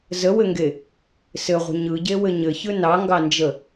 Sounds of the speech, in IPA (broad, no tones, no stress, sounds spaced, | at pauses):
z ə w ɘ ŋ ɡ e | s ɘ ʁʷ ə̤ ɲ ɯ ɟ e w ɘ ɲ ɘ ç ɯ n ɑ ŋ ɡ ɑ n d͡ʒ ə